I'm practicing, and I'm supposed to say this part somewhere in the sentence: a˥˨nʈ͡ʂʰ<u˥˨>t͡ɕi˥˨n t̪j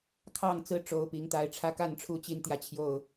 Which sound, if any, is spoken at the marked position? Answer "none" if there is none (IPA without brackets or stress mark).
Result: u˥˨